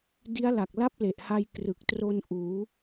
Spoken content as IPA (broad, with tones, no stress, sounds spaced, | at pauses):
d i˦˥ a̯ l a˨˩ k̚ l a˥˩ p̚ l e˨˩ ʔ h a˧ j k r ɯ˨˩ k̚ t r o˧ n ʔ uː˩˦